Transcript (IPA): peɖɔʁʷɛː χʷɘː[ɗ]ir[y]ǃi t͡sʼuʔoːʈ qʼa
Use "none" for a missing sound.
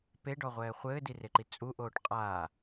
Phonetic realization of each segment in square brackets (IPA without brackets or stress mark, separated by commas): d, e